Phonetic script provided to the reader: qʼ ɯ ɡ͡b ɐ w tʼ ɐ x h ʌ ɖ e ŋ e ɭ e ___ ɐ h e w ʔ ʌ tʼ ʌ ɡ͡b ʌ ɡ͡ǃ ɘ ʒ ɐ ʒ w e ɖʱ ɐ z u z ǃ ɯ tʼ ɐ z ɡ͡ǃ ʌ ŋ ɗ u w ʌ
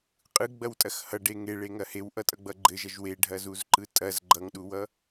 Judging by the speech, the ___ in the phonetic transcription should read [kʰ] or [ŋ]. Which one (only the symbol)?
ŋ